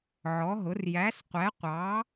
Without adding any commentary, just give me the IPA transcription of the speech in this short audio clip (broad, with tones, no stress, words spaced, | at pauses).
ʕɔ˨˥ɦʊ˨˥r jæ˨˥sqʷɛ˨˥qʷɑ˨˥